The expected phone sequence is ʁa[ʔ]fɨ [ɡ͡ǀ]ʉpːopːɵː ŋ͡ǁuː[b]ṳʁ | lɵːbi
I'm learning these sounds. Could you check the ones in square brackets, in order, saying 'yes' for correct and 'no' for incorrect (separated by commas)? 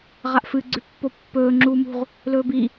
yes, yes, no